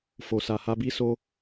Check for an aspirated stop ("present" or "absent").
absent